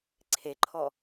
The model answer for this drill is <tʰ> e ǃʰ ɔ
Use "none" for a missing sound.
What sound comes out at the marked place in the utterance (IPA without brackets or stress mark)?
ǀʰ